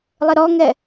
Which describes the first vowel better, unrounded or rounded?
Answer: unrounded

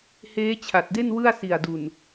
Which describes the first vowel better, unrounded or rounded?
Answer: unrounded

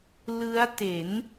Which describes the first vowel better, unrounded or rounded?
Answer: unrounded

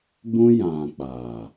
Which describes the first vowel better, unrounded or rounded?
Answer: rounded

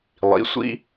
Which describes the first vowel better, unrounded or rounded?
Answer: unrounded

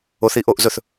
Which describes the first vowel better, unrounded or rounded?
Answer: rounded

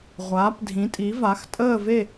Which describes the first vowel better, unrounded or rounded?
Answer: unrounded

